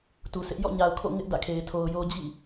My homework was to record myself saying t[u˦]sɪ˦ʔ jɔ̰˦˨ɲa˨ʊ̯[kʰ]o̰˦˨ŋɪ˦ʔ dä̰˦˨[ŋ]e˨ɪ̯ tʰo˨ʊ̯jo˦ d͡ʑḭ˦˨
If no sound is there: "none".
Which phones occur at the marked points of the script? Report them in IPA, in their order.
u˨, kʰ, kʰ

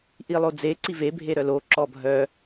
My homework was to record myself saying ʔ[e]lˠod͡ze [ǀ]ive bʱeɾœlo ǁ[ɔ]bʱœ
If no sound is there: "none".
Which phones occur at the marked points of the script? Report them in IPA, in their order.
i, ǀ, ɔ

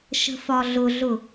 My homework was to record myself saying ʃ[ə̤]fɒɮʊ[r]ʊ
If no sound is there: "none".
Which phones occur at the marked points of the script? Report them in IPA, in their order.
ə̤, ɮ

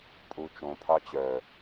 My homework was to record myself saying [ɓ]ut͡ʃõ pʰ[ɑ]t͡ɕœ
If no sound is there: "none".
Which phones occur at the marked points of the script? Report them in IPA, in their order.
pʼ, ɑ

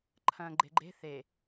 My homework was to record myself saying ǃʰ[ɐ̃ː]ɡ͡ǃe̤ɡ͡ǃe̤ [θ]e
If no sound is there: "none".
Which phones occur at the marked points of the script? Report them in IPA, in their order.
ɐ̃ː, θ

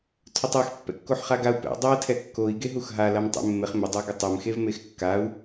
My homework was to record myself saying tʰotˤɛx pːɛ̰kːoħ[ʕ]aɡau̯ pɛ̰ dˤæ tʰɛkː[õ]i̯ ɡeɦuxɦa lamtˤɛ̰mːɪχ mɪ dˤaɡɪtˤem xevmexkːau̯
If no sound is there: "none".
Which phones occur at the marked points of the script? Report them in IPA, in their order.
χ, o

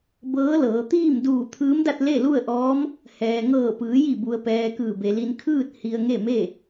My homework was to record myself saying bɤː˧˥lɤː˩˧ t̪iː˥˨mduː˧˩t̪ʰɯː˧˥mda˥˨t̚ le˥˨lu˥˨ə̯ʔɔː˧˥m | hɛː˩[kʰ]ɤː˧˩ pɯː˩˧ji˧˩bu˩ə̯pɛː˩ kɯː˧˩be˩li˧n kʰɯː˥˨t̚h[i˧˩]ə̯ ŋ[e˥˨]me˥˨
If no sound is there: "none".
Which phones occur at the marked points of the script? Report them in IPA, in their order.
ŋ, i˩, e˥˨

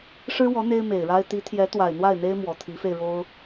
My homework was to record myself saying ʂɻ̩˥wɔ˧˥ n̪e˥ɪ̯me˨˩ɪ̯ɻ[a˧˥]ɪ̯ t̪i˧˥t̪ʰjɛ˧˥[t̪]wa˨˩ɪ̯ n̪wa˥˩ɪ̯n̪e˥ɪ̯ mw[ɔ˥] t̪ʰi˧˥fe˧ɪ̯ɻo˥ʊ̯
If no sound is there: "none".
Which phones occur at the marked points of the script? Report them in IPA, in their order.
a˥, t̪, ɔ˨˩

